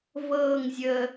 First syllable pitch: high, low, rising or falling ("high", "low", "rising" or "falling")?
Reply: falling